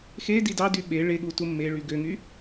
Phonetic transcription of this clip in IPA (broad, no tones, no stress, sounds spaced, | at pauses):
x e d i d ɑ d y ɓ e ɭ e ɠ u t u mː e ɭ y ɡ ø ŋ y